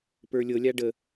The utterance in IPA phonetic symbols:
p ə˞ lʲ ɤ lʲ a ɖ ə

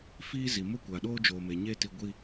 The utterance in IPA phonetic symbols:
f iː˦ z i˨ m ʊ˦ kʷ a˨ ɗ oː˦ d͡ʒ oː˨ m e˨ ɲ eː˦ t i˨ ɡʷ i˨

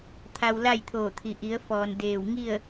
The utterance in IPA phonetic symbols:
t̪ʰ a˧ w l a˥˨ j t̪ʰ oː˧˩ t̪ʰ i˩ ʔ i˩˧ ə̯ f ɔː˩ n d eː˧˩ w ŋ i˥˨ ə̯

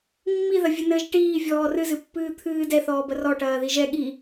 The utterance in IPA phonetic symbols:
mː i ð ɐ vʲ ɘ n ɘ ʒ ʈ iː vʲ ɔː r ɨ z ɨ pː ɨː t̪ʰ ɨː d ɛ θ ɔː b ɐ r ɔ ʈ ɐː ð i ʒ ɛ ɠ i

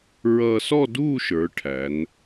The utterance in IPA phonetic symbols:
ɹ ʌː˧ s ɔ˥˧ d uː˥˧ ʃ ə˞˩˧ ʈʰ æ˩˧ n

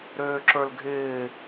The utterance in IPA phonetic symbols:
ɾ øː ǁ ə˞ l ɡʱ ɪː

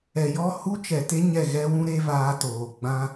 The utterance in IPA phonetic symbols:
ɛ˨ j ɔ˦˨ h u˦ t͡ʃ ɛ˨ t e˦ ɲ ɛ˦˨ ɣ ɛ˦ w ũ˦ ɾ e˦ v aː˧ t oː˨ ɡ͡b ã˦

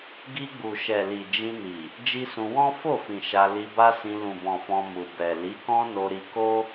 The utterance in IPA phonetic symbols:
ɡ i˧ ɡ͡b u˨ ʃ ɛ˨ l i˨ d͡ʒ ĩ˧ n i˨ | d͡ʒ i˦ s ũ˧ w ɔ̃˦ f o˦˨ f ĩ˨ ʃ a˧ l i˧ b a˦ s ĩ˧ l ũ˨ b ɔ̃˨ f ɔ̃˧ m u˨ b ɛ˨ l i˨˦ k ɔ̃˦ n o˧ ɾ i˧ k o˦

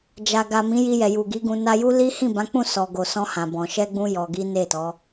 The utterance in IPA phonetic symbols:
d͡ʒ a˨ ɡ a˨ m ĩ˨˦ j i˧ j ɛ˨ j u˨ ɡ i˨˦ ɡ ũ˧ n a˧ j u˦ l i˦ h ĩ˦˨ b ã˨˦ k͡p ũ˦˨ s ɔ˨ ɡ o˨ s ɔ̃˧ h ã˨ b ɔ̃˨ ʃ ɛ˧ ɡ͡b ũ˧ j ɔ˧ ɡ i˦ n e˦˨ t ɔ˨˦

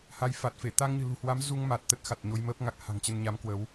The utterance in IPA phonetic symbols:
h a˨˦ j f a˨˩ t̚ f e˧˩ t̪ a˧ ŋ ɲ ɨ̤˨˩ l ṳ˨˩ h w a˨˦ m z u˧ ŋ m a˨˩ t̚ t̪ ə˦˥ t̚ x a˨˩ t̚ ɲ o˧ j m əː˦˥ p̚ ŋ a˨˩ k̚ h a̤˨˩ ŋ t͡ɕ ə˧ n ɲ a˨˦ m k w ə˨˦ w

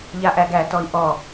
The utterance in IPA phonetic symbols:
ʎ a ʔ æ ɡ æ t ɔ i̯ ʔ ɔ

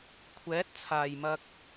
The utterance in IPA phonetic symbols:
kʷʰ ɛː˨˥ t̚ t͡sʰ aː˨˩ j m ɐ˧ k̚

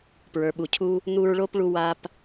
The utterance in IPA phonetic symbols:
p ɹ ə˞˨ ɓ u˨ cʰ u˦ | n̪ u˦ ɹ ɭ o˥ p ɭ u˦ w a˦ p

